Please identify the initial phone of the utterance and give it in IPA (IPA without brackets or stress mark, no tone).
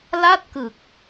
l